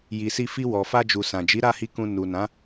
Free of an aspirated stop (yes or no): yes